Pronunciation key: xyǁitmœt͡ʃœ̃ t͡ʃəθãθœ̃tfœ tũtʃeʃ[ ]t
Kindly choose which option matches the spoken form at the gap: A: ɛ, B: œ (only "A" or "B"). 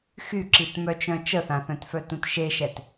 A